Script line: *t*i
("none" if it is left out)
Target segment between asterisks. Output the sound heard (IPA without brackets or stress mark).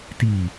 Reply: t